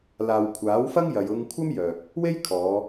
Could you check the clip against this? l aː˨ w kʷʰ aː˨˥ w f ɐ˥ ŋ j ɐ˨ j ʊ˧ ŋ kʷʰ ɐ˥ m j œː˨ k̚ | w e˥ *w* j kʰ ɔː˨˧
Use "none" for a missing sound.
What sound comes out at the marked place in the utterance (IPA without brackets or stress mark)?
none